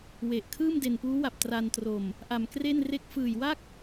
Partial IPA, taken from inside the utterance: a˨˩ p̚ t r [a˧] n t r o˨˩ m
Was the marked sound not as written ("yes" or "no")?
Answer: no